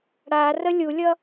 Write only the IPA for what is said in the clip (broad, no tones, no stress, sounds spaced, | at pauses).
ɽ a r ə lʲ u lʲ ʌ